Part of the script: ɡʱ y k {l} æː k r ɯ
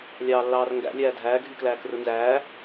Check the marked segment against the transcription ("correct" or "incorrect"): correct